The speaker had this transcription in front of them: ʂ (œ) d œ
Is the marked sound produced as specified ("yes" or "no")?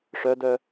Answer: yes